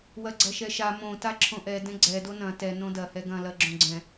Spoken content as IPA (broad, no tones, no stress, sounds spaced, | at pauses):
w ɐ ɡ͡ǀ ɐ ʃ ɛ ʃ a m õ t a ǁʰ õ ʔ ɛ d ɛ̃ ɡ͡ǀ ɛ d o n ɐ̃ t ɛ n õ d ɐ h ɛ ɡ ɐ̃ l ɐ ɡ͡ǁ õ ɡ͡ǀ ɛ̃